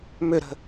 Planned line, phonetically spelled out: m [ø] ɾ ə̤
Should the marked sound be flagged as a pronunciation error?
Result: no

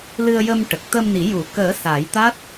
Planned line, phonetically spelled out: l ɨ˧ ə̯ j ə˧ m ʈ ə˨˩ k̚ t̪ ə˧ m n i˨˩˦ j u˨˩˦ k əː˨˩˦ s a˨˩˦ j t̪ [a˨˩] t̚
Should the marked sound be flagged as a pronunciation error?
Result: yes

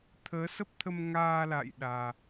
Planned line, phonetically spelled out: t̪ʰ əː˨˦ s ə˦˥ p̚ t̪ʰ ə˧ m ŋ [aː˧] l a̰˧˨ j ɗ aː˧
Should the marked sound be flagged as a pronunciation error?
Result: no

